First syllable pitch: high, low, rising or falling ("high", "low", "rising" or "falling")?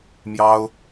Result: high